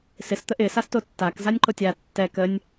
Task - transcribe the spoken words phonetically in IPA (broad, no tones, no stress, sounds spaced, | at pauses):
s ɪ s t̪ ə ʔ ɪ s a s t o tː a k z a nʲ ǃ o tʲ a tː ɛ k ə nʲ